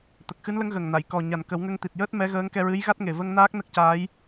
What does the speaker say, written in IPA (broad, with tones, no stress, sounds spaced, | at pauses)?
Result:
t̪ ə˨˩ k̚ x ɨ˧˥ n l ə˧˥ ŋ ɣ ə˨˩ ŋ n a˨˩˨ j k ɔ˨˩ ɲ a˨˩ n k ə˨˩˦ w ŋ ə˧ ŋ t̪ i˨˩ t̚ j əː˦˥ t̚ m ɛ˧˥ ɣ əː˧˥ ŋ k ɛ˧ ɹ ɨ˧˥ j ɣ a˦˥ t̚ ŋ e˨˩ v ə˧ ŋ n aː˦˥ k̚ n ə˦˥ k̚ c aː˧˥ j